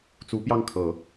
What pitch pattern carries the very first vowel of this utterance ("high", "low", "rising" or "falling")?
rising